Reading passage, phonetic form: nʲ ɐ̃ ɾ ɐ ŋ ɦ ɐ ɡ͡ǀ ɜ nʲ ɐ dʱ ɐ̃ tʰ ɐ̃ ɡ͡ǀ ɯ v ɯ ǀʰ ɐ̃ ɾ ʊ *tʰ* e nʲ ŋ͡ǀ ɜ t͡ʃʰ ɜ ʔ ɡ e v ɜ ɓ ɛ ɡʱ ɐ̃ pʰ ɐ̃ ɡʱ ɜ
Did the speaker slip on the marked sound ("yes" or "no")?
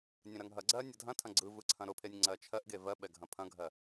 yes